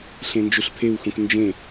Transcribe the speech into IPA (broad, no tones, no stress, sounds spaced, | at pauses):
ɬ ẽ n d͡ʒ u ɬ pʰ e u̯ x ũ k n d͡ʒ ẽ